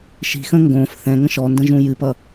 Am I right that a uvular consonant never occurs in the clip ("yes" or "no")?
yes